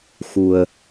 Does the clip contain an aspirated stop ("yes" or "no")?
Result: no